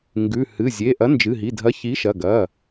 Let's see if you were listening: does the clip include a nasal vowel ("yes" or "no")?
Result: no